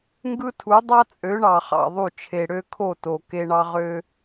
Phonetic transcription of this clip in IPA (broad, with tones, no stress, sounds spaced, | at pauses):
ŋ ɡ ɯ˦ tʰ u˨˦ dˤ ɑ˦ t͡sʼ ø˨˦ ɳ ɑ˨ χ ɑ̰˨ ðˤ u˦˨ t͡ʃʰ e˨ ɽ ø˦ kʰ o˦˨ t o˨ k e˦ ɳ ɑ˦ ʁ ø˦